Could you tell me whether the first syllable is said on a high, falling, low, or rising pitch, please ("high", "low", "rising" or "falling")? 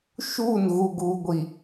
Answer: falling